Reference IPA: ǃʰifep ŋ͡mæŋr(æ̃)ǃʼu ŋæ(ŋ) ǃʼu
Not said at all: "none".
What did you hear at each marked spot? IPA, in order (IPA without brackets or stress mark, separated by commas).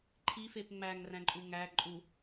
æ̃, none